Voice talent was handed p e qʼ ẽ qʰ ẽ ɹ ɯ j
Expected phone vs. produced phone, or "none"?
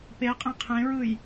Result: none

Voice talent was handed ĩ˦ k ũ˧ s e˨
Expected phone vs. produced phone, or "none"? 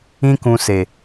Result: none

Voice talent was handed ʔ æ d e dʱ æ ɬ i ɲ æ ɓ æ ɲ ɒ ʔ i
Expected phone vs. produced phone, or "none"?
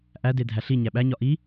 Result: none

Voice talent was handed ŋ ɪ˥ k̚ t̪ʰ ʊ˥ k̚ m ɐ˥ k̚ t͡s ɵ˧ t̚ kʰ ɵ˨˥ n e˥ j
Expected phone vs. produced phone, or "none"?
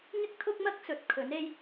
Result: none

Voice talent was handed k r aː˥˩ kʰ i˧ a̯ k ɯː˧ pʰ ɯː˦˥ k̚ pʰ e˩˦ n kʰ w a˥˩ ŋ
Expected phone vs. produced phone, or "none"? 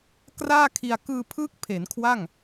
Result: none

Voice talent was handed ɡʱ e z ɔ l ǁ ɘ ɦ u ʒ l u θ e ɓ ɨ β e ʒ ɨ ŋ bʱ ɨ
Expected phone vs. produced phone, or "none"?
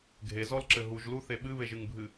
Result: none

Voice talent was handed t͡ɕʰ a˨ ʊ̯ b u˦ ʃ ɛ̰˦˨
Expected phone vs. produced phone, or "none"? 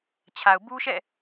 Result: none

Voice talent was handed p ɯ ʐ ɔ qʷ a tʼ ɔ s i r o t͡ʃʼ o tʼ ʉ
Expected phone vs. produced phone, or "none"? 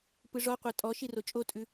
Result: s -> ʃ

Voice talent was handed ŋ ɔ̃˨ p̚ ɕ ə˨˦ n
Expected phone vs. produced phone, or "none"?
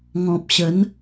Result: none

